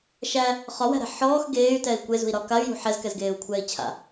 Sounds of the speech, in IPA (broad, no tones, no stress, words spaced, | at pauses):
ʃæ | χɒwæ̤ɾɛ̤ ħɔːx ɡeːy̯tɛi̯ kʷezṳi̯ɾɒ kay̯jṳ ħɛzkɛzɡeːu̯kʷʰɛːi̯ t͡ɕʰa̰